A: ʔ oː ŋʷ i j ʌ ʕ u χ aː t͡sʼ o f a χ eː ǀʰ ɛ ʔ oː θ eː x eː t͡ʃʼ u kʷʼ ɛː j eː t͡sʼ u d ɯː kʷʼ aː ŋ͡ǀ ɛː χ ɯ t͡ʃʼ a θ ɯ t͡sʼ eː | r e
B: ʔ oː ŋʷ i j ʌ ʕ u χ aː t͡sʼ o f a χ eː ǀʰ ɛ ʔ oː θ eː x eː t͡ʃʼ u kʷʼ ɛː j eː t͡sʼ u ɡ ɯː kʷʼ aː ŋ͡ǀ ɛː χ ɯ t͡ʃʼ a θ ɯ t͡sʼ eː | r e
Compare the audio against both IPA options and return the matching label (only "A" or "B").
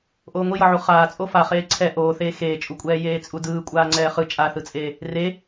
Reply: A